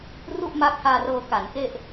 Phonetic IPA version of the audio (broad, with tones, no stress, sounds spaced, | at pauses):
r u˥˩ ʔ m aː˦˥ k̚ h aː˧ r ɤː˧ k a˩˦ n k e˥˩ ʔ